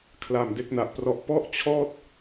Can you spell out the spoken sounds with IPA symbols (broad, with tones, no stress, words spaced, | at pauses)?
kʰla˨˩m de˦˥k̚na˨˩ʔprɔ˥˩ʔ pɔ˥˩ʔt͡ɕʰɔː˥˩t̚